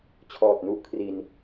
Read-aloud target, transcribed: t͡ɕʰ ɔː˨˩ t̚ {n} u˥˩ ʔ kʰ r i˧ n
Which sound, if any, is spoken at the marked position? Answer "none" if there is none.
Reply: n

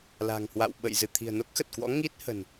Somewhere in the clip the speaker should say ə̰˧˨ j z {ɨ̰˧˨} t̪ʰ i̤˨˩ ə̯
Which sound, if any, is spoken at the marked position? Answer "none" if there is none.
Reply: ɨ˧˩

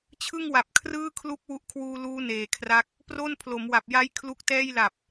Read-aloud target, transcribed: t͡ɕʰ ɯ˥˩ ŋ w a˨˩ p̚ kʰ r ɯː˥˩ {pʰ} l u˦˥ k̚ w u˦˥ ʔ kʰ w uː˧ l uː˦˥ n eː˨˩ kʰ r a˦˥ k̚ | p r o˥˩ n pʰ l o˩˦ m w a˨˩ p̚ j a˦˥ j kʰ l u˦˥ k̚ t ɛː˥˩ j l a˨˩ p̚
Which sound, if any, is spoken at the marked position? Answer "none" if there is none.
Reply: kʰ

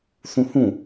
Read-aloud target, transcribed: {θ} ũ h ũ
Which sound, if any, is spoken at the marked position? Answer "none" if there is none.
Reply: θ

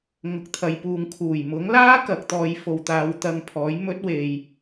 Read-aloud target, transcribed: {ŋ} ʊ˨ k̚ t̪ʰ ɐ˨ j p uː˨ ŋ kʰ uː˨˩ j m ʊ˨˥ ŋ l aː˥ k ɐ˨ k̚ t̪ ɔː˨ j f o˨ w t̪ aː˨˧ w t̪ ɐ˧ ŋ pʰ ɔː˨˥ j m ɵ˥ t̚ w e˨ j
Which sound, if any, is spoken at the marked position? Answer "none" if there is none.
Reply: ŋ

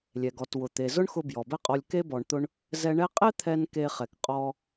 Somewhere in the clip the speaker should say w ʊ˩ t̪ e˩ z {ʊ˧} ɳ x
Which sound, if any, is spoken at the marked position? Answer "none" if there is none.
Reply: ʊ˥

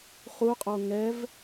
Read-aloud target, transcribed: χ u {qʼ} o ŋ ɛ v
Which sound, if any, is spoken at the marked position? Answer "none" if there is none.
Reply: qʼ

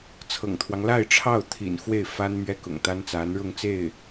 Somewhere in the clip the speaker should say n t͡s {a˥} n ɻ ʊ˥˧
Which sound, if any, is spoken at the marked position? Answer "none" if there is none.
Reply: a˧˥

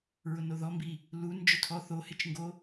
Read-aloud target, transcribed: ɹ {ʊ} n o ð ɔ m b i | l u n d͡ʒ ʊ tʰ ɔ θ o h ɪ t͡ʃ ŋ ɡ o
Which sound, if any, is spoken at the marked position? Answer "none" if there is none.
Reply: ʊ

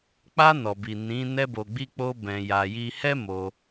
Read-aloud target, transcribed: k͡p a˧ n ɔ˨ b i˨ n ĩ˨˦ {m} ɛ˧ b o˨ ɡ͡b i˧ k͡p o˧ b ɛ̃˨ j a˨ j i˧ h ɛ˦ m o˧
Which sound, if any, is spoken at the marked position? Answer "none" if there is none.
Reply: n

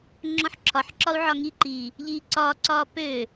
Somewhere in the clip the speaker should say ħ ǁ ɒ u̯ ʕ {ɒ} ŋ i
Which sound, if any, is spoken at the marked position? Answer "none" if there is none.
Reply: ɒ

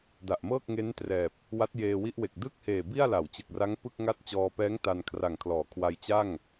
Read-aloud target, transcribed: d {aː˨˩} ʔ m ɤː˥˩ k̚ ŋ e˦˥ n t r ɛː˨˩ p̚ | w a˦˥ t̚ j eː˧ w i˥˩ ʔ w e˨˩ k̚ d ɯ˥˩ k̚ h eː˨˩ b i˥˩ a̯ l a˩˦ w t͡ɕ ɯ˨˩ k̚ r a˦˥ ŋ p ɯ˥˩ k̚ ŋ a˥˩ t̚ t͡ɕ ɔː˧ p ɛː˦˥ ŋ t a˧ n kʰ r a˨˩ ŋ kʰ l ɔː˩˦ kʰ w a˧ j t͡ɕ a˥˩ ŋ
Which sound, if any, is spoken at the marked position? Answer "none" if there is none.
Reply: a˨˩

